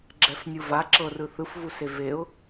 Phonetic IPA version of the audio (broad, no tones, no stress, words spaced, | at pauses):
ɡ͡ǁɛfnʲɯva ǁɤrɯ θɯfvuse veʊ̯